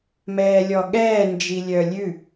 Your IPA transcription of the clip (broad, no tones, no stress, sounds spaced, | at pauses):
m ɛː lʲ ɔ ɠ ɛː n d͡ʒ i lʲ œ lʲ ʉ